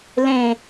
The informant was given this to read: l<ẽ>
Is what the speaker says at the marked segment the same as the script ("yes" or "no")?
yes